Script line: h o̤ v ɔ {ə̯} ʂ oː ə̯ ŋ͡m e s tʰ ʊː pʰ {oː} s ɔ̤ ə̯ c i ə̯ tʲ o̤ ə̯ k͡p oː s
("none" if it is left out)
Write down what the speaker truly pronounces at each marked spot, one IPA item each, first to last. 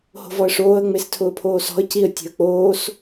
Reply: ə̯, oː

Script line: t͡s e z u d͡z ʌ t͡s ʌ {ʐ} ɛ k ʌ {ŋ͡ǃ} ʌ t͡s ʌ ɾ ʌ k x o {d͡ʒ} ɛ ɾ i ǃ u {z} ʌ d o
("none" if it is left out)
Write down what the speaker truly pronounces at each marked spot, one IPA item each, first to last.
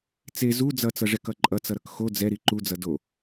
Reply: ʐ, ǃʼ, d͡z, d͡z

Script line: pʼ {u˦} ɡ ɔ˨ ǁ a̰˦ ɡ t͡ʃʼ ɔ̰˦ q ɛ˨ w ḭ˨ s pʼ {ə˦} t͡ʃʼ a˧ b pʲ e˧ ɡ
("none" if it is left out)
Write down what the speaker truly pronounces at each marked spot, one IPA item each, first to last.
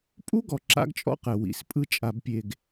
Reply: u˦, ɯ˦

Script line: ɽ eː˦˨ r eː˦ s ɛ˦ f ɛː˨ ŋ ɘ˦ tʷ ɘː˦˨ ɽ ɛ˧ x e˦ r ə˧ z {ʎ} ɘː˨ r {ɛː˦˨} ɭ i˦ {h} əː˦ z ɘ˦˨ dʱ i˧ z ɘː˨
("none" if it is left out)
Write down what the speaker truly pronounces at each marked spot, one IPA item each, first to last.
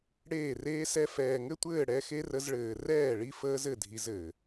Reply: ɭ, ɛː˦˨, f

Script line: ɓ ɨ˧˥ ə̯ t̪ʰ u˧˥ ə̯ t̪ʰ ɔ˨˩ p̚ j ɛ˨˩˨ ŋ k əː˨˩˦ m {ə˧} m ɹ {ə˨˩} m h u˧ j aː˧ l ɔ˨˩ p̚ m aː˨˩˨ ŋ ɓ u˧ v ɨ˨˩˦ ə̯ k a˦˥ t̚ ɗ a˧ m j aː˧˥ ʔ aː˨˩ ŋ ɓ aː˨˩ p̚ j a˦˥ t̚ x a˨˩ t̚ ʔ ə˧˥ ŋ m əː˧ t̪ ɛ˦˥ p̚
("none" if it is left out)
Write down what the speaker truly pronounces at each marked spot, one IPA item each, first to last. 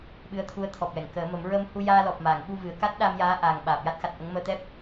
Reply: ə˨˩˦, ə˧

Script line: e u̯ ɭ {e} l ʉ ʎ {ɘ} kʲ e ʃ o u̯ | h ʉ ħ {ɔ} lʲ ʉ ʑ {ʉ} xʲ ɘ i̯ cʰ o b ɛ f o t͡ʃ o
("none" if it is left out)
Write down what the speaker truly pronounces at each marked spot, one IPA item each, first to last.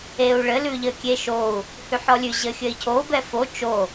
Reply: ɘ, ɘ, ɔ, ɘ

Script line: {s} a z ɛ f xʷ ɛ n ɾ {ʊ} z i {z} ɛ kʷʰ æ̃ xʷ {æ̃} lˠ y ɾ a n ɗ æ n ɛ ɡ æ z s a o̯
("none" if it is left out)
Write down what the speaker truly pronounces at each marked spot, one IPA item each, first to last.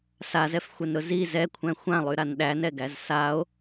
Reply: s, ʊ, z, ã

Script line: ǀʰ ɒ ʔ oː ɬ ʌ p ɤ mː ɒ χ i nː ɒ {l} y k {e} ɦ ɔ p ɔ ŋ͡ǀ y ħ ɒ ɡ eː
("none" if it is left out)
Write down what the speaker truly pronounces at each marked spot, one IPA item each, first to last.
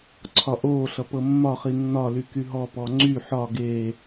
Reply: l, y

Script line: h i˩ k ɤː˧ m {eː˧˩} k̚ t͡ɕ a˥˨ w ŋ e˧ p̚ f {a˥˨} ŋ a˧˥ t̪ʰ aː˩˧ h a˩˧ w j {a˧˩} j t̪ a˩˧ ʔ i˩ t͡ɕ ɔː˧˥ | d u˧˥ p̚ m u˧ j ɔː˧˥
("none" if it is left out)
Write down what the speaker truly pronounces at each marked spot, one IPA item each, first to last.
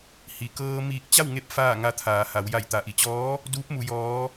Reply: iː˧˩, aː˥˨, a˧˩

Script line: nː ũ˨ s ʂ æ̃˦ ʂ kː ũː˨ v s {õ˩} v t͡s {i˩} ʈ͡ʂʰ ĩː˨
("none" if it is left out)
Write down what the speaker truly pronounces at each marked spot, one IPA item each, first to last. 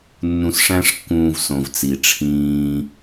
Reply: õ˩, i˩

